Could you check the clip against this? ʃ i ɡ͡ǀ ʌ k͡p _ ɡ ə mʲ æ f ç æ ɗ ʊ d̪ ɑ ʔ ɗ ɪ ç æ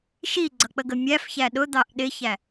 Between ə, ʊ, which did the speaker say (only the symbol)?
ə